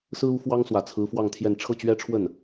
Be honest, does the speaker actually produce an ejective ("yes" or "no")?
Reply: no